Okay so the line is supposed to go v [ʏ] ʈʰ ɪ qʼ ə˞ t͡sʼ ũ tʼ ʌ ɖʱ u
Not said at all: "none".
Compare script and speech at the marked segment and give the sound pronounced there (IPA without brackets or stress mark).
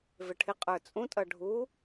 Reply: ɪ